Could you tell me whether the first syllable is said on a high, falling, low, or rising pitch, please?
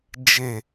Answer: low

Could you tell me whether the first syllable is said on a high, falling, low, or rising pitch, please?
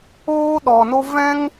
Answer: high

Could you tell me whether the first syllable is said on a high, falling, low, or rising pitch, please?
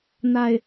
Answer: low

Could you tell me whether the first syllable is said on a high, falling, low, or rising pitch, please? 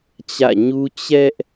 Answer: falling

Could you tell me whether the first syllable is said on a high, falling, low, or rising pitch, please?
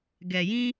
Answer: low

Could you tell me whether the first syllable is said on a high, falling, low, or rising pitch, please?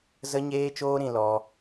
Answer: high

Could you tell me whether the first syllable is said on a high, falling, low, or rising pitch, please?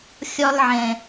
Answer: high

